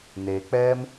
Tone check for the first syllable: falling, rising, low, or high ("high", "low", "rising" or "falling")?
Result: low